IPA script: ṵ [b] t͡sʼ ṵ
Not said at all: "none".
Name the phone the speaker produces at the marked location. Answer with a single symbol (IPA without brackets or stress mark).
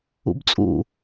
b